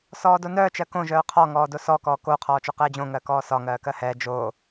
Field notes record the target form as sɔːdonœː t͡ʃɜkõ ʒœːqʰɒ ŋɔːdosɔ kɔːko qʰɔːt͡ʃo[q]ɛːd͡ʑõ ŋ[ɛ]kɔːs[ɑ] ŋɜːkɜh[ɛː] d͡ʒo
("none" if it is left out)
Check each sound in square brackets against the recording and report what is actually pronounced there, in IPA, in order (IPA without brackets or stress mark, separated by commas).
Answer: q, ɜ, ɒ, ɛː